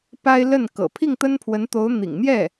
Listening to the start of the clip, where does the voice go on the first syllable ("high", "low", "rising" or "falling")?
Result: high